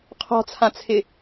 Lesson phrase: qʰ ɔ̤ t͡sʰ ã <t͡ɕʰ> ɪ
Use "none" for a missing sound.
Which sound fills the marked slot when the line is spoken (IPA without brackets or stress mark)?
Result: t͡sʰ